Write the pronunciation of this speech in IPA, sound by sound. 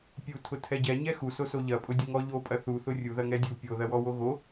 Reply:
pʲ u tʰ ʊ tʰ ɛ ɟ ɛ ɲ ɛ x u s o s o ʎ ɐ pʼ ʊ dʲ ʊ ŋ ɔ ʎ o pʼ ɐ θ u θ ʊ rʲ u ð ɐ ŋ ɛ dʲ u pʲ o ð ɐ w ɔ w o ɣ o

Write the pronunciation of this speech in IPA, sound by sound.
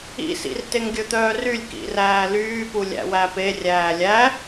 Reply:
ḭ s ḭ r t e ŋ ɡʲ ɵ t̪ œː r y lʲ k ḭ r æː l yː p u lʲ æ̰ w æ p e rʲ æː lʲ æ

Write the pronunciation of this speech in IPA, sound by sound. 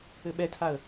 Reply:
ɘ ɓ ɛ tʰ a ə̯

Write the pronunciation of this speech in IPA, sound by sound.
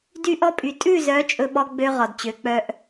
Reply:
d y˦ ʔ ɔ˦ pʼ y˨ tʼ ʉ˦˨ z œ˨˦ t͡ʃʼ ɵ˦ ɓ ɔ˦ ɡ͡b ø˦ ʁ ɔ˨ d t͡ɕ ø˨˦ k͡p œ˦ ʔ

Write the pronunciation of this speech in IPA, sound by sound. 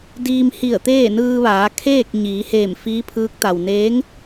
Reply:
d iː˧ m h i˧˩ ə̯ t̪ eː˥˨ n ɯː˧ ʋ aː˩˧ kʰ eː˥˨ k̚ ɲ iː˩˧ h eː˧˩ m f iː˧˥ pʰ ɯː˧˥ k̚ t̪ a˩ w n eː˧˥ ŋ

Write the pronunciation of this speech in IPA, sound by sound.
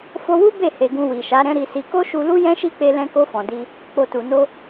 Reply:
f o˧ w u˦ b e˦˨ h e˨ ɡ ũ˧ w i˨ ʃ a˨˦ ɾ ɛ̃˦ ɾ i˧ s i˧ k o˦ ʃ u˧ l u˦ j ɛ̃˦ ʃ i˦ k͡p e˧ l ɛ̃˧ k o˧ f ɔ̃˨ d i˧ | k͡p o˨ t u˨ n o˧

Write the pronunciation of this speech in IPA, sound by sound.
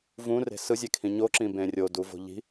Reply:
v ũ r e̤ s ɯ zʲ e kʰ ĩ ɲ o ǁ ĩ b ẽ rʲ o d u v o̤ ʎ i̤

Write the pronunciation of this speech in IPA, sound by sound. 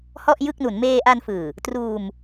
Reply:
h ɔ˥˩ ʔ j ɯ˥˩ k̚ n u˩˦ n m eː˧ ʔ a˧ n f ɯː˨˩ | t r uː˧ m

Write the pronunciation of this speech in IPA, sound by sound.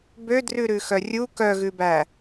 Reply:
b ø d r ʉ ɾ ʉ x œ rʲ u k œ ɣ ʉ b æ

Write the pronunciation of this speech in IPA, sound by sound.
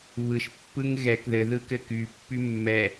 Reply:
β ɯ ʃ pː ɯ ŋ ɣ ɛ k ð ɘ ð ɯ k ɘ k y pː y mː ɛ

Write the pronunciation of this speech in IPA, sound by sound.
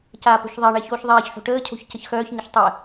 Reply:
c aː p o̤ ç ðˤ e ɳ ɛ ç oː ç ðˤ ɛː ç ħ o̤ ʈ əː cʰ o̤ ç c ə ç x œː ç ɲ ə ç tˤ ɛ

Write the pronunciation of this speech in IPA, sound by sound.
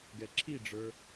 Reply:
ɡ ɛ ǁʰ i ɖ͡ʐ ə˞

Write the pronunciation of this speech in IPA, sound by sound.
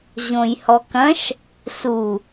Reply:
ʑ õ j h ɔ k ɐ̃ ʃ | s u

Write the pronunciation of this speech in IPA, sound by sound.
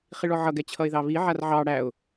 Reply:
χ i ɭ ɔ ʕ ʌ ɡ ɛ t͡ɕʰ ʌ ɪ̯ ð ɑ β i ʕ a r ʕ ɑ ɽ æ ʊ̯

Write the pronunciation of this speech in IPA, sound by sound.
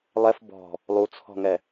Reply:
lˠ ɛ f b ɔ̤ | lˠ u t͡sʰ ɔ̤ ŋ ɛ

